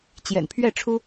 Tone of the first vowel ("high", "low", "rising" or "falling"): low